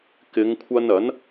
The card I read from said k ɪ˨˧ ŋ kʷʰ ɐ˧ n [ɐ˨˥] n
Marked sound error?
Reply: no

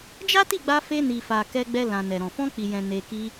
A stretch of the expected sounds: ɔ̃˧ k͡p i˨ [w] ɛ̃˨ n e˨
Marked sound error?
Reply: yes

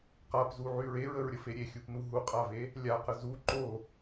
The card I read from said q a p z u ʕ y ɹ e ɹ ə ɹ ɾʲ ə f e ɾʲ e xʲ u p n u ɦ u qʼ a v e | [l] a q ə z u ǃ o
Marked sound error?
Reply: yes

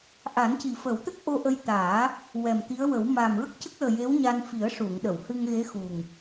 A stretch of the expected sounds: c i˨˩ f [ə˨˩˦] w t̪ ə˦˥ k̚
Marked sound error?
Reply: no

